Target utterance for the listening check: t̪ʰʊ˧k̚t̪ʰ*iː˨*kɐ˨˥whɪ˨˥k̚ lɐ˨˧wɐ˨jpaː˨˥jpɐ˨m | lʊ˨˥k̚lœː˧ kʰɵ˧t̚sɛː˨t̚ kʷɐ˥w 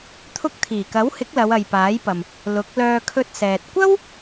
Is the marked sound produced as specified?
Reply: no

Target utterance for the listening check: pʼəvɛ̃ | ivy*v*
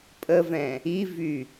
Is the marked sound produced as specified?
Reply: no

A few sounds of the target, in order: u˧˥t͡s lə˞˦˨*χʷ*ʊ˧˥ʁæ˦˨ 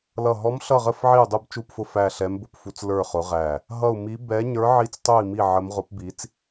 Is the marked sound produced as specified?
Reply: no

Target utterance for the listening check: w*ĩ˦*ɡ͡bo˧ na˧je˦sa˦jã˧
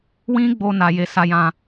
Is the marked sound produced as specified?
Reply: yes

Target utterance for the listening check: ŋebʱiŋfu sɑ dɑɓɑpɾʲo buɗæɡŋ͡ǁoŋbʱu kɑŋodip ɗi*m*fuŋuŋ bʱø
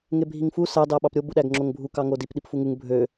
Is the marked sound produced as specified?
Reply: no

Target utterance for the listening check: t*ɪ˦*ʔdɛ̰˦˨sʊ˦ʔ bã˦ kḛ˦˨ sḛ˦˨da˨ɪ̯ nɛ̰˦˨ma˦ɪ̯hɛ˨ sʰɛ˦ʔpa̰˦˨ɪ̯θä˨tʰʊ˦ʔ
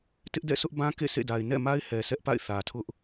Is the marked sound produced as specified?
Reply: yes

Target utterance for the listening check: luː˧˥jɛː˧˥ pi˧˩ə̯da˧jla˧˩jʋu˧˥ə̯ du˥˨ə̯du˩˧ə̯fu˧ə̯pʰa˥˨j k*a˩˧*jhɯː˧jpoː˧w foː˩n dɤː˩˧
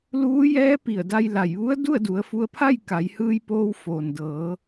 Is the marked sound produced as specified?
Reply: yes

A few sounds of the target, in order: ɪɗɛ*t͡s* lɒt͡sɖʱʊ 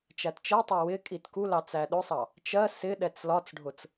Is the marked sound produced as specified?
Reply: yes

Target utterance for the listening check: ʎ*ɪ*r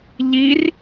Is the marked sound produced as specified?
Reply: no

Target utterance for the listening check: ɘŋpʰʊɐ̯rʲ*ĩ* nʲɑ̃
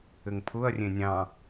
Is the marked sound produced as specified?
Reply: no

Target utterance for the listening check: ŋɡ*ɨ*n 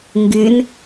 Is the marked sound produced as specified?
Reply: yes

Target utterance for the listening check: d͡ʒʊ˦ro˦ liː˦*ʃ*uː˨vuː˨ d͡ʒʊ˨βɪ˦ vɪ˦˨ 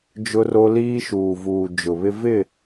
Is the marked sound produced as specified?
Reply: yes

